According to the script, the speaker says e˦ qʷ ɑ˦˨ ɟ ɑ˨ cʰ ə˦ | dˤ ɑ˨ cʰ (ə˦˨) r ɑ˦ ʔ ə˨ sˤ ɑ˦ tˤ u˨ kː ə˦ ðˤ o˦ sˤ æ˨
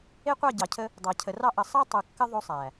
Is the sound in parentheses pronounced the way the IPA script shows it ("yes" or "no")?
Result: no